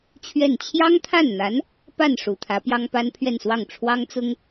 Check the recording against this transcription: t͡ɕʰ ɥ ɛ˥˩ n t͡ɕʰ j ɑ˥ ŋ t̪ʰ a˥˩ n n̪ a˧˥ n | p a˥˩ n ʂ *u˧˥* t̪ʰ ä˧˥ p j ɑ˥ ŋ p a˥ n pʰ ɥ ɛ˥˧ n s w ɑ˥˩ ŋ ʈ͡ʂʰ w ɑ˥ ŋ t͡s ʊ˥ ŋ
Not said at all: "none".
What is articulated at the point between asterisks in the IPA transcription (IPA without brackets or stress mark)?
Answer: u˨˩